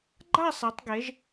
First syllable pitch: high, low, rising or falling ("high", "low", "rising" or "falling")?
falling